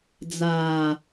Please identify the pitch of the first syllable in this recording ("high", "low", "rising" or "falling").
low